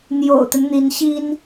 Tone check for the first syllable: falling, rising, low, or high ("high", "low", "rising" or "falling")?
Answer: low